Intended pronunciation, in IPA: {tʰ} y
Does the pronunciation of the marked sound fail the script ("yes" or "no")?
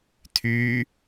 no